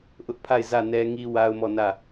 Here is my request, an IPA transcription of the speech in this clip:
ʔʊ˦ʔpʰa˦˨ɪ̯ zä˦˨nɛ˦ ŋi˦wa˦ʊ̯mɔ˦˨nä˦˨

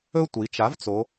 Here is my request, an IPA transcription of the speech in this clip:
ɵ˥tʷi˩˧ t͡ʃa˩˥vt͡so˩˧

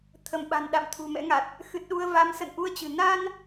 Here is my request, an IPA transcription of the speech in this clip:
t̪ʰə˧˩mɓa̤˨˩n ɗa̰˧˨m t̪ʰṳ˨˩mɛ̰˧˥ŋa˨˩t̚ | xɨ˨˩t̚ɗu˧ə̯ va˨˦msə̰˧˨nʔu˧ə̯t͡ɕɨ̤˨˩ na˧n

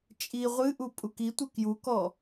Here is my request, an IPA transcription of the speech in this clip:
t͡ʃʼi ʁʷɨʔu pʼukitʷɯ kjukɔ

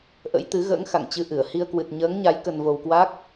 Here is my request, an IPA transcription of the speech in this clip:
ʔə̰˧˥jt̪ɨ˨˦ ɣə̰ː˧˥ŋxa̰˧˨ŋ t͡ɕɨ˧ʔɨ˧˩ə̯ hi˧ə̯kwɨ˨˩t̚ ɲəː˨˦ŋɲa˨˦j kə˧nvo˧wkwa˦˥k̚

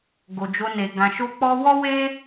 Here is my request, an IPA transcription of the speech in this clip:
ɡo˨d͡ʒo˧ne˨ ɡã˨ʃo˧k͡pɔ˧wɔ˦ we˦

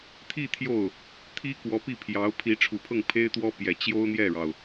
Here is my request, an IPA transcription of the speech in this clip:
t̪ʰi˥˧ t̪ʰjo˥˩ʊ̯ | t̪ʰi˥kwɔ˧˥ pi˥˩pʰjɑ˧˥ʊ̯ pʰi˧˥ʈ͡ʂʰu˨˩pʰɤ˥˩ŋ pʰe˥ɪ̯t̪wɔ˥ pjɛ˨˩t͡ɕjo˥ʊ̯n̪jɛ˥˩ɻɑ˩ʊ̯

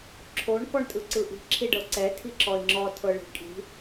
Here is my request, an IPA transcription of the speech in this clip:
ǁʰoɳ kɔɳtʼɯǀɯʔi̤ ǁʰiɖɤǀɛ tʰiǁɔɪ̯ŋ͡ǁɔ tʰɤɭi̤kʼi̤

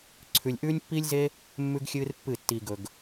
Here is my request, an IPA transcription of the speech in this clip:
ǀʰʉ˨lʲʔʉː˦nʲpːiː˦lʲze˦ | mːʉ˦ɡxʲɨː˦rpːɨ˦˨ tːiː˨ɡɵ˨ɡ

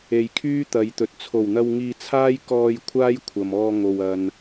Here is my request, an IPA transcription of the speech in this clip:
e˨jkʰyː˥t̪ɐ˨˧jt̪ɵ˨t̚ t͡sʰo˨˩wn̪ɐ˧w ŋiː˧t͡sʰaː˥j kɔː˧j kʷʰaː˥j kʷʰɐ˨mɔː˧ŋo˨w ɐ˨n

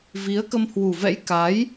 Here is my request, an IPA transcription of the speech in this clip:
vi˨˦ə̯kə˧m hwu˨˩vɛ̰˧˥j ka˨˦j

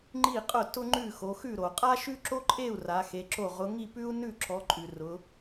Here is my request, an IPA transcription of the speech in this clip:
ŋ͡ǃi˥˨qʼʊ˥˨tʊ˥ ŋ͡ǃʉ˥˨xo˨˦xʉ˥˨ɾo˨ qʼa˥ʃʉ˥ǁo˥ǃʼe˥˨u̯ ra˨˦xe˨˦ǁo˥˨ ʁʊ˨˦ŋi˥˨pʉ˥u̯ nʉ˥˨ǁɔ˨˦ǃʼʉ˨ rʊ˨˦

